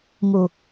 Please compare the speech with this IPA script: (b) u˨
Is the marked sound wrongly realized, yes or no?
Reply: yes